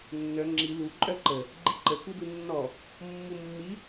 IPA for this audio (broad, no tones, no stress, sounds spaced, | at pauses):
nː œ ŋ͡ǁ i l u ǃʼ œ ǃ ə | ɡ͡ǃ i ǃ ə k u d u nː ɔ | mː u mː i